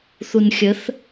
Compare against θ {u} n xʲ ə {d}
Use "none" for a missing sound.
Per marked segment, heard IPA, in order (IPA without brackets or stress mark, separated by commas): u, θ